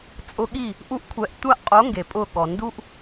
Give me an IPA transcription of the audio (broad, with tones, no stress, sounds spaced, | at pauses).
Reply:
t͡sʼ ʊ˧ ɠ i˦˨ | ʔ u˧ ʔ kʷʰ ɛ˨ ʔ tʷ a˦˨ ʔ qʼ o˨˦ ŋ ɡ e˨ pʼ ʊ˦˨ ɠ ɔ˨ n d u˦ ʔ